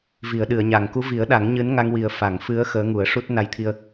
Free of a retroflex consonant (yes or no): no